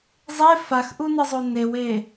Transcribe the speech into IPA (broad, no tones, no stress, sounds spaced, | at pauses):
zˤ e f a x ʔ u n ɯ zˤ o n e w e